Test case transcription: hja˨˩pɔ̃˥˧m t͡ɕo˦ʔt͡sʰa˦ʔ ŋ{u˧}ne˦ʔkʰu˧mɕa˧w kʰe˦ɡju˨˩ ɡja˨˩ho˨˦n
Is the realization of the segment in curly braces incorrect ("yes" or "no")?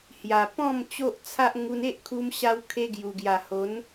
no